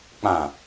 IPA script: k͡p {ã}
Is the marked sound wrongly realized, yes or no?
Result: no